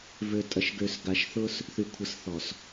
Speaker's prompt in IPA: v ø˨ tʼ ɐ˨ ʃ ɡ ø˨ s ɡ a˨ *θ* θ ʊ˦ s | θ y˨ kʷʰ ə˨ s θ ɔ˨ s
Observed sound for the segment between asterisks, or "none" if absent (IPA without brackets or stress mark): ʃ